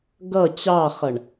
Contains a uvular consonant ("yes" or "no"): yes